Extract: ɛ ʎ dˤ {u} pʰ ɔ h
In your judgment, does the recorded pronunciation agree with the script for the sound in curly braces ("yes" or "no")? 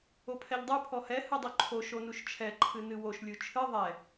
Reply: yes